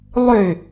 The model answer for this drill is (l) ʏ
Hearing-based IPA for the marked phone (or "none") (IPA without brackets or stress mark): lˠ